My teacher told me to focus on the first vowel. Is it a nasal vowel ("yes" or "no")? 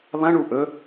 yes